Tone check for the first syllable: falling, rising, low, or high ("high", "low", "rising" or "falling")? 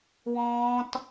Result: high